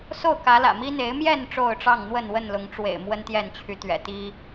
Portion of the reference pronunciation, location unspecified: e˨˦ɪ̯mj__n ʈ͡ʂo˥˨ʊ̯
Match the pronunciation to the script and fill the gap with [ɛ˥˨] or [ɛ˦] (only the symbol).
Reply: ɛ˥˨